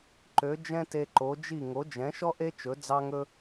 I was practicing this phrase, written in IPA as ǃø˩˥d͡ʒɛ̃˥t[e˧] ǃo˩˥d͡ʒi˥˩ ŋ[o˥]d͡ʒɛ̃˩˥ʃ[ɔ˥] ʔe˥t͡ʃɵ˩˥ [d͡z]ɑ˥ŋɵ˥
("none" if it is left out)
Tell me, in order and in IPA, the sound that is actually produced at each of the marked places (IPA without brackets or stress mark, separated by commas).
e˧, o˩˥, ɔ˥, d͡z